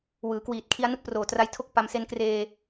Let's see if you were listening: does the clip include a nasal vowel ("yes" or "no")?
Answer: no